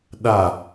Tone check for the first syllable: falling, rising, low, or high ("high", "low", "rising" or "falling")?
falling